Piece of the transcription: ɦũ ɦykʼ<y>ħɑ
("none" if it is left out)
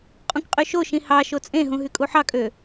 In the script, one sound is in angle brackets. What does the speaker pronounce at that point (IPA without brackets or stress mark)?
u